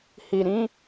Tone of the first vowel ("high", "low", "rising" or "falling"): low